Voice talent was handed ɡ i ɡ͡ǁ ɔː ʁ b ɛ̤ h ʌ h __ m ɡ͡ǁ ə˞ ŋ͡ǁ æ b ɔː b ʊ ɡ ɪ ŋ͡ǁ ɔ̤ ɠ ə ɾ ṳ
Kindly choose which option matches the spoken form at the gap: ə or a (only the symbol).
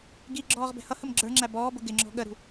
ə